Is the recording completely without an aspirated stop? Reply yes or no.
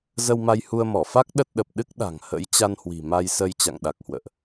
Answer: yes